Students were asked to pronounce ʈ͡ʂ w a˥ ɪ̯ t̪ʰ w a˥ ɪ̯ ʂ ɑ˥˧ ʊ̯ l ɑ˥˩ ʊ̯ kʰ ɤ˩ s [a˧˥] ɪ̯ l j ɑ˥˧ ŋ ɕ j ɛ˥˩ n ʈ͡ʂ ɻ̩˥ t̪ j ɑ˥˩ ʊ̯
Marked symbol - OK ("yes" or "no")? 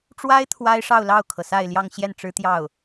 no